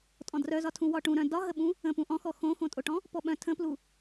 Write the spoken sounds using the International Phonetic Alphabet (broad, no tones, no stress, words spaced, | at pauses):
tʼɔ̃drœzɒtʰũ wɒʈũ ɾœ̃ dɒɦəɓũ | ə̃ pũʔɔ̃xɔ xõxõtʼoʈɔ̃ | pɔɓœ̃ tʰə̃plu